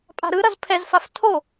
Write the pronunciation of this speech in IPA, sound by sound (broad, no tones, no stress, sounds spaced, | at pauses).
pʼ a̤ ɾ ɯ ɾ ʌ z pʰ ɛ z f a f tʰ o